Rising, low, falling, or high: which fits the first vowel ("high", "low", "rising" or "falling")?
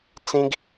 high